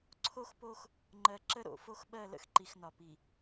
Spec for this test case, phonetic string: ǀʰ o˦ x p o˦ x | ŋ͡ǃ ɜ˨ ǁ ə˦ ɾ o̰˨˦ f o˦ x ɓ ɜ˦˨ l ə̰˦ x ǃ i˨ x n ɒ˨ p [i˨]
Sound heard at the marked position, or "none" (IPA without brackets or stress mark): i˨